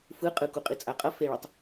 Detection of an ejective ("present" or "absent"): present